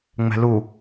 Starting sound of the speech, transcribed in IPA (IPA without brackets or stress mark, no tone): ŋ͡m